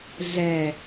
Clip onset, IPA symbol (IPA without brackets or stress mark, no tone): ɮ